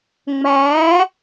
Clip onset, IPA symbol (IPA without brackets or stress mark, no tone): ŋ͡m